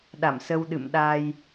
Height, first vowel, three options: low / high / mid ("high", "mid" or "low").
low